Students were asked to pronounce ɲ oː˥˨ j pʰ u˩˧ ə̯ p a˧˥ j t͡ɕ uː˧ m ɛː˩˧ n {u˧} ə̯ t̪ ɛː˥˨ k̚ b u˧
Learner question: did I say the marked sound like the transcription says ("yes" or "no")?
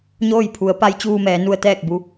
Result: yes